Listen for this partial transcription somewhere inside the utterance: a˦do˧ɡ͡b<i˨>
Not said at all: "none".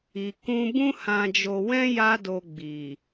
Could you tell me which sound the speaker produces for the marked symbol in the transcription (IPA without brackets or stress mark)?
i˨